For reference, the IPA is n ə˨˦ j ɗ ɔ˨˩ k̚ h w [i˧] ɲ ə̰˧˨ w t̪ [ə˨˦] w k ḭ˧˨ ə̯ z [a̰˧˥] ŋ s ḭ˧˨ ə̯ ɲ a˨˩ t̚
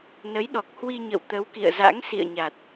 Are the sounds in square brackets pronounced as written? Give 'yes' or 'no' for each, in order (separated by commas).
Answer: yes, yes, yes